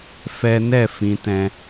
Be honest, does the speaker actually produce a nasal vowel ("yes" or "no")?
yes